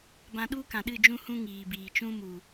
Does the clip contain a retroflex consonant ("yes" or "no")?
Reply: no